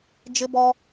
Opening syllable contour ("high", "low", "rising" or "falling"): high